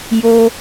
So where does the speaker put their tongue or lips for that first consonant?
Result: palate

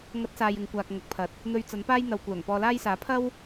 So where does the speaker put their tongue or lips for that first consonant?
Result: velum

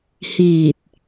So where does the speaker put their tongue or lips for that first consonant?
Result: throat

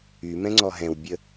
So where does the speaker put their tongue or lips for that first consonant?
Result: lips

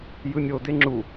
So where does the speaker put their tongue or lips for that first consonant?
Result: palate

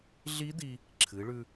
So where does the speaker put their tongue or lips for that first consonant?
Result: tongue tip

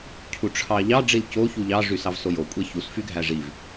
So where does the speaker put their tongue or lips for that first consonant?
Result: palate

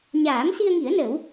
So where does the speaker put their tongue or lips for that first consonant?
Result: palate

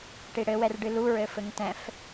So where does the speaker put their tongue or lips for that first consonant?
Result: retroflex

